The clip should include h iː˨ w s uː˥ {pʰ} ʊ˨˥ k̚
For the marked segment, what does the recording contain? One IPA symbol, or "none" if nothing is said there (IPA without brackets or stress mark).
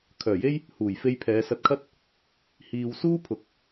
pʰ